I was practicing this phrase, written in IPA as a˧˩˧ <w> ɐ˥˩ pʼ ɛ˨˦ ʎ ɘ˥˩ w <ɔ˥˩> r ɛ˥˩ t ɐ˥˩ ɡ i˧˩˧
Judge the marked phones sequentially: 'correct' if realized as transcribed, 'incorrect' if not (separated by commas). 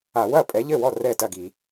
correct, correct